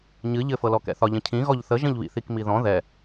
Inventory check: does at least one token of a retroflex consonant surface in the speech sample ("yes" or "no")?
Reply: no